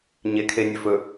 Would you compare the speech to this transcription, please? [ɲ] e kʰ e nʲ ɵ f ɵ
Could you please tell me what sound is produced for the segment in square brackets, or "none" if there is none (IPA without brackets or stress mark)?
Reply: ɲ